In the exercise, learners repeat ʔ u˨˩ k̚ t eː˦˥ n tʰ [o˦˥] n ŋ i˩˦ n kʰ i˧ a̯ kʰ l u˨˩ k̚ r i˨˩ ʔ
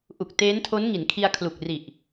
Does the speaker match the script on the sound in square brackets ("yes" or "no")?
yes